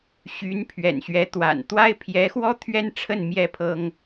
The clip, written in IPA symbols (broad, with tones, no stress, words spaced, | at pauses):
ɕy˧˥n pʰɥɛ̰˨˩nɕɥɛ˧˥t̪wa̰˨˩n t̪wa˥ɪ̯pʰjɛ˧˥xwɔ˥ t̪ʰɥɛ˥nʈ͡ʂʰə˥˩n mjɛ˥pʰɤ˥ŋ